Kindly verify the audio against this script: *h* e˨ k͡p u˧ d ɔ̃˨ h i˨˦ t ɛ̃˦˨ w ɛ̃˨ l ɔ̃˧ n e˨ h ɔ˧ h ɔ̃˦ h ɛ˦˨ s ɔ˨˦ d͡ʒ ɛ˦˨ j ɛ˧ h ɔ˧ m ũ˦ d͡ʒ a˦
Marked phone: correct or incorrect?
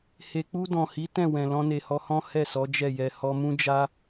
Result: correct